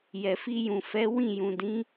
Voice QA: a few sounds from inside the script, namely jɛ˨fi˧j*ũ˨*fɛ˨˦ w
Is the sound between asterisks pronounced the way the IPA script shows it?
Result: yes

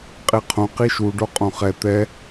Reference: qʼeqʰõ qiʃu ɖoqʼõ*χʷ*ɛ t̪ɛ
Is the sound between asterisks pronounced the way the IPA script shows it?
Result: no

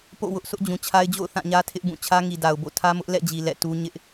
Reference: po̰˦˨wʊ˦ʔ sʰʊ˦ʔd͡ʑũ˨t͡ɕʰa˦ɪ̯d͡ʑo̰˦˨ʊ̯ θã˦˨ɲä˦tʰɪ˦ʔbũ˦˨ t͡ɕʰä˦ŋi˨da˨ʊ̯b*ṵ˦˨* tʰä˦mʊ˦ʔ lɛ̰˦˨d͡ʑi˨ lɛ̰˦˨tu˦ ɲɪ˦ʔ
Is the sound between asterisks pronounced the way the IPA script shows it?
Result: no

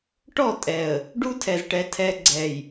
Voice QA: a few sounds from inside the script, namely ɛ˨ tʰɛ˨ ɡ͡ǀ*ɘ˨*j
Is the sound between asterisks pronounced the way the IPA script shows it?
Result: no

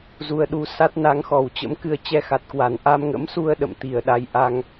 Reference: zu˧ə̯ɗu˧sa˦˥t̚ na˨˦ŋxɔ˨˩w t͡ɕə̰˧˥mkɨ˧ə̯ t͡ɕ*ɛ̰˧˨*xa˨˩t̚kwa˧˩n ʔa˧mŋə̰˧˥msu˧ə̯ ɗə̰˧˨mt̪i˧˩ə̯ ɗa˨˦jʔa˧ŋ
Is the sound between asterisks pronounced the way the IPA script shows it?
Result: no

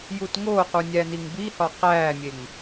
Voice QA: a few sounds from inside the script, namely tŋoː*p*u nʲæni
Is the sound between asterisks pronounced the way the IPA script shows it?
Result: no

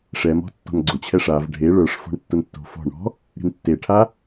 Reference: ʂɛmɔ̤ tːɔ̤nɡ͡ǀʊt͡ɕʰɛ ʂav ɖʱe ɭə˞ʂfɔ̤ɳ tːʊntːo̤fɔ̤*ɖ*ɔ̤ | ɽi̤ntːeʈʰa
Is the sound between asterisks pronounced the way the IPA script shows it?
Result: no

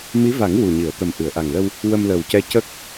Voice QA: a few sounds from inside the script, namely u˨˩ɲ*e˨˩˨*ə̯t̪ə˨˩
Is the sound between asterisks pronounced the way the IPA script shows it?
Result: no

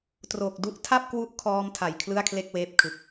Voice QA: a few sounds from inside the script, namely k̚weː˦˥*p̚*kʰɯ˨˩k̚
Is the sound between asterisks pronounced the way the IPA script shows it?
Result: yes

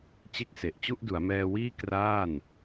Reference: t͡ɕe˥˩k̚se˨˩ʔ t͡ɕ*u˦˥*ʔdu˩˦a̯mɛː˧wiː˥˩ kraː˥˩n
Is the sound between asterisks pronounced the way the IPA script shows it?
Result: no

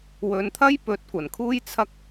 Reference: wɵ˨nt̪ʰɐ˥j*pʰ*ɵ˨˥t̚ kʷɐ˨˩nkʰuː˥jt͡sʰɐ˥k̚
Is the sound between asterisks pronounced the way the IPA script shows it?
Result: no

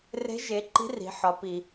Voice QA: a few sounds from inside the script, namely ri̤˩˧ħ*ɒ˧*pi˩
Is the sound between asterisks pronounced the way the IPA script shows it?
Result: no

